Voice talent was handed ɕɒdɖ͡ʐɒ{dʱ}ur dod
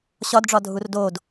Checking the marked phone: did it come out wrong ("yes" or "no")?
no